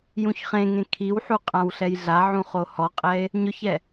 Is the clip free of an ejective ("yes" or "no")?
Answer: no